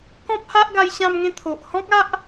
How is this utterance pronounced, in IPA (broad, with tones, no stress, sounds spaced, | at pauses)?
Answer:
k ɔ̃˦ p̚ h a˦ ʔ ɡ a˧ j ɕ ã˦ m ŋ ẽ˦ t̪ʰ o˨ ʔ h ɔ̃˦ k̚ a˦ ʔ